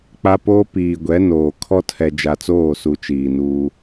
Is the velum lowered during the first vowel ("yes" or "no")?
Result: no